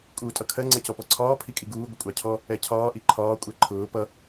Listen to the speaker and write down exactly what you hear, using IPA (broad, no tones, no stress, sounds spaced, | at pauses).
kʼ uː tʼ ʌ kʰ ɜ ŋ͡ǀ ɛ c ɔ p ɔ ǀʰ ɒː pʰ i kʼ i ɡ uː ɡʷ ə kʷʼ ɑ cʰ ɔ | ɛ cʰ ɒː ʔ i ǃʰ ɒː kʷʼ ɛ ǃʰ ʊː p ʌ